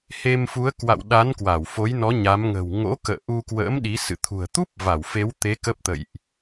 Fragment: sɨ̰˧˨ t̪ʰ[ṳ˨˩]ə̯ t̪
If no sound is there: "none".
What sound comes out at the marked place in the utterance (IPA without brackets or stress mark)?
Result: ṳ˨˩